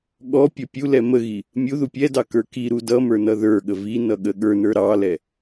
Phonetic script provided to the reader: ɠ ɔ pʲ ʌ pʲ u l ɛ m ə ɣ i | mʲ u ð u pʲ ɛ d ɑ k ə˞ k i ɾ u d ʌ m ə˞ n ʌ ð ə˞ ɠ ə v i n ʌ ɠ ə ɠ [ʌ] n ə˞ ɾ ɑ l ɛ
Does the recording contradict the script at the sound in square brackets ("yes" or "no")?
yes